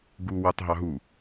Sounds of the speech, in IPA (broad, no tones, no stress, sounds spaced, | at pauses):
ɡ u w ɑ t ɦ ɑ ɦ u